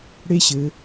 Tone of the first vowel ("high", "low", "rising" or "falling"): high